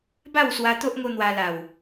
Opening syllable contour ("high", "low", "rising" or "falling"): falling